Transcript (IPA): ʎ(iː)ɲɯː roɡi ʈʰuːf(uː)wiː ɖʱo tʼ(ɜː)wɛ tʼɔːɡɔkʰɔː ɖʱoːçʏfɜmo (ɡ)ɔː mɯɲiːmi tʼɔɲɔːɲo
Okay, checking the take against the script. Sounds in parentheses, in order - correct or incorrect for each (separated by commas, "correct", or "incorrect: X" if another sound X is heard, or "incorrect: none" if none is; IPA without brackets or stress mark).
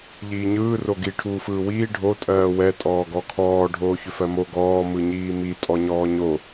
correct, incorrect: ɯː, correct, correct